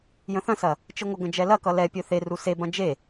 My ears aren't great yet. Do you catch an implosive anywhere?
no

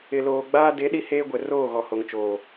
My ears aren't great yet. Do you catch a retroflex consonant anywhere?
no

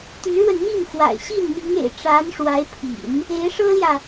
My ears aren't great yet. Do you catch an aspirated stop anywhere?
yes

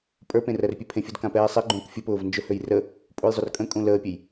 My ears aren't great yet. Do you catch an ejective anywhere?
yes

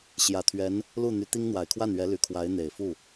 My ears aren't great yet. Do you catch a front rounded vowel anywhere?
yes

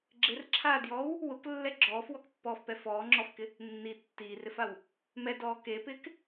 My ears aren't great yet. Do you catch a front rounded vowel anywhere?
no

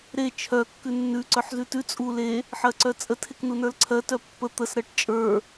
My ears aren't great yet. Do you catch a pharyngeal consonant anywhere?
yes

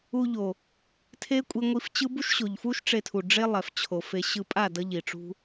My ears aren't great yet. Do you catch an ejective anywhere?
yes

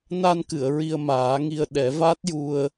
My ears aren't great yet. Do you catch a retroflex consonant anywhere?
no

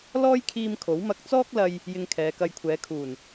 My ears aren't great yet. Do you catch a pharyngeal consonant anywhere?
no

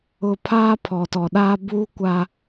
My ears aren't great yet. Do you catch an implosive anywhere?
yes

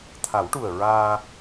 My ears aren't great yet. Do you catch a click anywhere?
no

